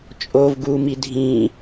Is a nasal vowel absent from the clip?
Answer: no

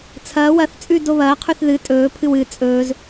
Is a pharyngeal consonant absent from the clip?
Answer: yes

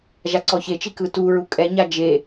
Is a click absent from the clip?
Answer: no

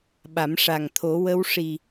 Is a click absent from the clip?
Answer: yes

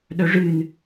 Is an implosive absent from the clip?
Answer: no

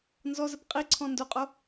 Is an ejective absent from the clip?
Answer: no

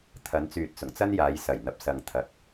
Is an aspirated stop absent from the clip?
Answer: no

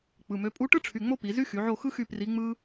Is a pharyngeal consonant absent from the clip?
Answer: no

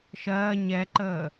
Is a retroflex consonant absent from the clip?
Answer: yes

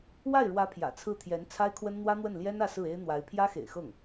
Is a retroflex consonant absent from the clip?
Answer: no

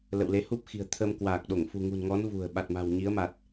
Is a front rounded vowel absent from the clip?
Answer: yes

